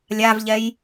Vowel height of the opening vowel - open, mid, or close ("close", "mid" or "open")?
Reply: open